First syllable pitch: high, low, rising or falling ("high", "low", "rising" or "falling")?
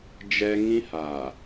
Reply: high